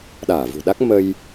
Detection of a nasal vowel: absent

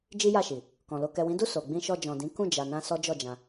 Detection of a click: absent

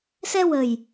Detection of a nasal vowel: absent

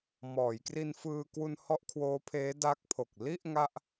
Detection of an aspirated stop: present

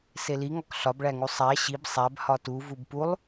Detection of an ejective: absent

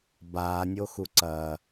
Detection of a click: present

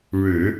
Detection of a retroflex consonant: present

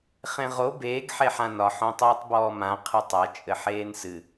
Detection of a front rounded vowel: absent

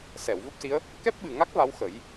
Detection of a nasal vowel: absent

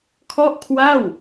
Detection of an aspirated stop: present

